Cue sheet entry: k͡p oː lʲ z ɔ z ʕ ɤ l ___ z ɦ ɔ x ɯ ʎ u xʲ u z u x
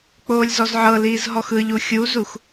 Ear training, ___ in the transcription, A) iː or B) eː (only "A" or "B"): A